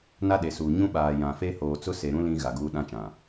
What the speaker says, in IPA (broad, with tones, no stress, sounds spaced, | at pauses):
n a˦ ɗ e˨ s uː˨ ɲ ũ˦ ɓ aː˨ j ã˨ f e˦ h oː˨ t͡s ʊ˦ s e˨ ɾ ũ˦ l ĩ˦ ɣ a˨ ɡ uː˦ ɗ ã˦ t͡ʃ ã˨